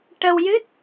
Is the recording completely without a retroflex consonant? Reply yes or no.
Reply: no